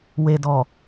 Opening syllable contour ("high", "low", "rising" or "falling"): low